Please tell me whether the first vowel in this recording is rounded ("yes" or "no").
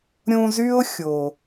yes